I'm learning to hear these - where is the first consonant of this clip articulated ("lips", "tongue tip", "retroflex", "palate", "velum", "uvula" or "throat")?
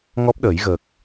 velum